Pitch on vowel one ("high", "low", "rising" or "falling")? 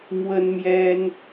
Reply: high